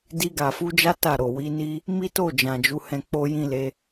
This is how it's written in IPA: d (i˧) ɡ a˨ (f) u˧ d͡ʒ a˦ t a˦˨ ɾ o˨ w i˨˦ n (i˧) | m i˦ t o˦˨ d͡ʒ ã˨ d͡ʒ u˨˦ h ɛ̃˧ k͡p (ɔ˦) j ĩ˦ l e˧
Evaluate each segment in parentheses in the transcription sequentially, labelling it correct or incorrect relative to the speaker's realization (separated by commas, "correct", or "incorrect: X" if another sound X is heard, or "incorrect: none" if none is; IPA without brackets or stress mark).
correct, correct, incorrect: i˦, incorrect: o˦